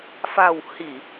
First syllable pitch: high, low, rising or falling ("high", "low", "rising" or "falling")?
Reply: low